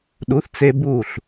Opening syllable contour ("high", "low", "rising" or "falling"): rising